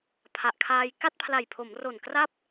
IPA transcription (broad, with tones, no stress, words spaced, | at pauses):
pʰa˨˩ʔkʰaː˧j ka˥˩t̚pʰla˨˩jpʰo˩˦mro˨˩n kra˥˩p̚